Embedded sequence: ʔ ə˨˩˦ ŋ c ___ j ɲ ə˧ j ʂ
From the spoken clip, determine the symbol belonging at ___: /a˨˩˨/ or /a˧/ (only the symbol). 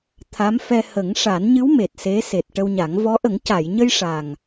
a˨˩˨